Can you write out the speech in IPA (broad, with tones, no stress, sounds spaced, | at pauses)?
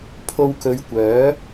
pʰ o˧ w k ɵ˨˧ ɥ kʷ œː˨˥